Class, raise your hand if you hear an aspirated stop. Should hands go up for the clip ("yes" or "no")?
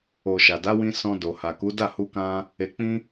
no